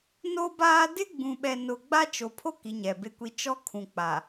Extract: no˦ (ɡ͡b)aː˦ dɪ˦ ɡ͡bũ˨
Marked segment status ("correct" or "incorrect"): incorrect